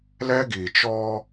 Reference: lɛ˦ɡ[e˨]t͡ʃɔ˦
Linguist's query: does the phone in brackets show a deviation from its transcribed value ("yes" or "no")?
yes